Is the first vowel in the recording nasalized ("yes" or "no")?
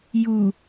no